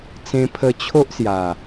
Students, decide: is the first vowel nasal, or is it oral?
nasal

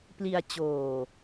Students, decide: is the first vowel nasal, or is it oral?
oral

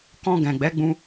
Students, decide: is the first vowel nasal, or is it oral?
nasal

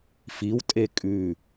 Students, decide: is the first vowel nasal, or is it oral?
oral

